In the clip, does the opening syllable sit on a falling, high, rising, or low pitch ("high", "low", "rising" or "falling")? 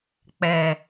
low